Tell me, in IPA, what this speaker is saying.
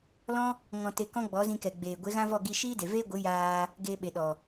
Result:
lɔ̃˦ | ŋɔ̃˧te˧ kɔ̃˦ɡ͡bɔ˨˦zĩ˧kɛ˨ ɡ͡beː˨ ɡʷe˨˦ɣã˦vɔ˦˨ ɡi˧ ʃiː˦de˨veː˦ɡʷɨ˨˦ jaː˧ | ɡeː˧ɓe˨ɗɔ˨

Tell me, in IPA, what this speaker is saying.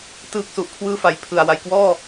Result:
tɯː˦˥k̚su˨˩ʔkʰwɯː˥˩ fa˨˩j pʰɯ˨˩a̯ wa˨˩jkwɔː˥˩

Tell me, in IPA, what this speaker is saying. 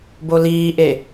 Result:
boliːʔe

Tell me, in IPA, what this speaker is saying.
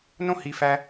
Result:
nõ˦hi˨fæ˧

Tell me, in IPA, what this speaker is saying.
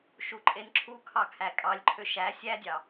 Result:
ʃuǃʼenǁʰukʰɑ kʰækʼɑlʲǃʰø ʃæ sʲædʲɑ

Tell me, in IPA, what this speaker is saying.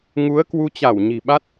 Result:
ŋu˨˦ə̯kwu˧t͡ɕa˧˩w ɲi̤˨˩ɓa˦˥t̚

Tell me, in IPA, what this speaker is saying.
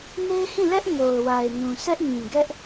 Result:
ne˦ɪ̯hĩ˦˨lɛ˦ʔ ŋo˨ʊ̯wa˨ɪ̯nũ˨ sɛ˦ʔŋĩ˨ ɡɛ˦ʔ

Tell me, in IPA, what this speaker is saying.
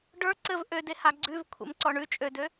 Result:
ɖə˞ ǀɘv ʔøde haɡ͡ǀʉv kʷʰḛmǀɔɳʉ t͡ʃʼødø

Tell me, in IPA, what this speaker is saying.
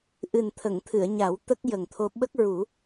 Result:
ʔɨ˨˩nt̪ʰə˨˩˨ŋt̪ʰɨ˨˩˨ə̯ɲa˨˩˦w t̪ə˦˥k̚jə˨˩ŋt̪ʰo˧ ɓə˦˥k̚ɹu˨˩˦

